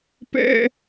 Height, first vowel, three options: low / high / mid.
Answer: mid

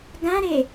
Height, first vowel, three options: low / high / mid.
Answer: low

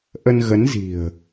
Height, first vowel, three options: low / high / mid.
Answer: mid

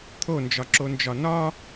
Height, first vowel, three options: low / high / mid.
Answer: mid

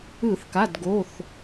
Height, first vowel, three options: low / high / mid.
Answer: high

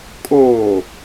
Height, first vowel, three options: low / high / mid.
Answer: mid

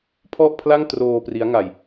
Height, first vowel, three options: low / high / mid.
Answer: mid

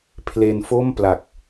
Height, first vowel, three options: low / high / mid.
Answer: mid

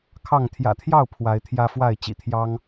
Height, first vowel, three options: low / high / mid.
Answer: low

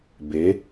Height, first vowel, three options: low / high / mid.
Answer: mid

